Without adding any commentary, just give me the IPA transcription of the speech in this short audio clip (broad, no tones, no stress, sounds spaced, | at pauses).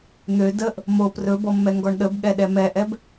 n̪ ø d ə ʔ | m o p r ɵ b ɔ mː ɛ ŋ ɡ ɔ ɳ ɗ ə b ɠ ɛ ɗ ɛ m ɛ ʔ ɛ b